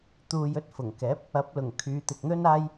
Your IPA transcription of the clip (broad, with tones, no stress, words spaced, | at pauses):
t̪uː˨j ɵ˥t̚fʊ˨˩ŋkɛː˨˥p̚ | ɐ˨˥p̚lʊ˨˩ŋ kʰyː˨˧t̪ɪ˨k̚n̪ɵ˥naː˥j